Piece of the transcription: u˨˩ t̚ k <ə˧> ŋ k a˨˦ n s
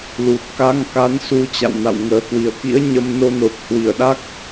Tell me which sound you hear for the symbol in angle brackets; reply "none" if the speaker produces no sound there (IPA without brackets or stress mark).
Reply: a˧